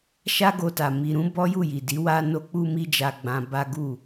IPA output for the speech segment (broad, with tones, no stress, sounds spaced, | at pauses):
ʃ a˦ ɡ o˧ t a˨ m i˨ ɾ ũ˧ b ɔ˦ j u˦˨ j i˨ d i˨˦ w a˦ n o˧ k͡p u˦ m i˦ d͡ʒ a˧ ɡ͡b ã˧ b a˦ ɡ u˦˨